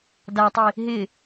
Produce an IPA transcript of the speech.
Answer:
d a tˤ i | ɦ ɪ

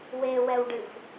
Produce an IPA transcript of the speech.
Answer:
w e w ɛ w ɖ ɨ f

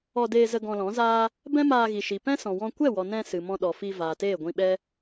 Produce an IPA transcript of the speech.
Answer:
ɔ˧ d eː˧ z ə˧ ɡ ɔ̃˧ l ɔ̃˨˦ z aː˦ | b ɛ̃˦ m aː˧ ɣ i˨ ʃ i˨ p ɛ̃˦ s ɔ̃˨ w ɔ̃˧ kʷ ɛ˦˨ w ɔ˨ n ɛ̃˧ s ɨ˨ m ɔ̃˧ ɗ ɔ˨ f i˧ v aː˨ t eː˦˨ ɡʷ ĩ˧ ɓ ɛ˦

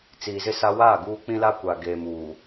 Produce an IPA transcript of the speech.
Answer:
t͡s iː˨ z ɪ˦˨ s a˦ w aː˦˨ ɡ uː˦ k͡p ĩ˦ l a˦ kʷ aː˨ ɡ eː˨ m uː˨

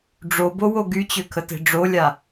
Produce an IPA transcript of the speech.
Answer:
ɖ͡ʐ o b o w o ɡ y t͡ɕ ø kʰ ə t e̤ ɖ͡ʐ o lʲ a

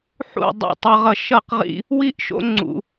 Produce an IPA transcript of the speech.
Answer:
ħ ṵ˥˨ dˤ ɛ̰˥˨ tˤ ʌ˦ ʁ ʌ˦ ʃ ʌ˥˨ q ʁ ḭ˦ | w i˥˨ ʔ ʃ o̰˦ ŋ͡ǀ ṵ˦

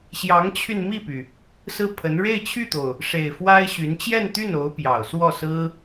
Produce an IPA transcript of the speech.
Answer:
ɕ j ɑ˧˥ ŋ t͡ɕʰ y˧ n m i˥˩ p y˩ | s ɹ̩˥˩ pʰ ə˧˥ n ɻ e˥˧ ɪ̯ t͡ɕʰ y˥˩ t̪ o˩ ʊ̯ | ʂ e˨˩ ɪ̯ f w a˥ ɪ̯ ɕ y˧˥ n t͡ɕ j ɛ˥˧ n t̪ y˥˩ n o˧˥ ʊ̯ p j ɑ˨˩ ʊ̯ s w ɔ˥˩ s ɹ̩˥

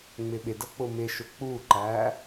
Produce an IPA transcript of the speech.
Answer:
ŋ͡m ɪ ɓ ɪ d ʌ k͡p ʊ m ɪ ʃ ʊ k͡p u ǃ æ

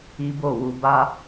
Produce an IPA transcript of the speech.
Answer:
i˦ b o˦˨ w u˧ b a˦

